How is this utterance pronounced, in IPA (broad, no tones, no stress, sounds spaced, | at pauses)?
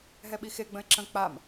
ɦ ɛ ɓ i x e ɡ͡b ə̃ ɪ̯ ǁ ə̃ k͡p a m